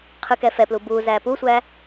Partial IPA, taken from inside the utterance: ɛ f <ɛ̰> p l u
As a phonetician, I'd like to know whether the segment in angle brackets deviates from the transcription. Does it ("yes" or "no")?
yes